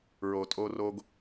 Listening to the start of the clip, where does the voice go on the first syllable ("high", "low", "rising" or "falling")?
low